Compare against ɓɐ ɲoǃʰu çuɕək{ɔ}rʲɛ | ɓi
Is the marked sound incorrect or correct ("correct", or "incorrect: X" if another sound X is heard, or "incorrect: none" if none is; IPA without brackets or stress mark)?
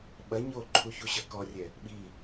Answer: correct